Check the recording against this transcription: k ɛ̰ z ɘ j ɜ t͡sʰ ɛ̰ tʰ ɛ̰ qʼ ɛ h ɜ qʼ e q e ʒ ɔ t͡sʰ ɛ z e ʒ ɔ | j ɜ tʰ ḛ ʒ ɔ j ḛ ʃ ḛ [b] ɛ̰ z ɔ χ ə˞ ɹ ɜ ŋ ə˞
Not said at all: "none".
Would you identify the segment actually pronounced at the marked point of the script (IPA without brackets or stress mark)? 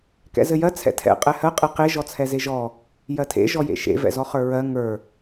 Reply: v